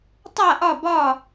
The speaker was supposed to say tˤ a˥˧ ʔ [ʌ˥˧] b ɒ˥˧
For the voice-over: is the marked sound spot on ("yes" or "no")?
no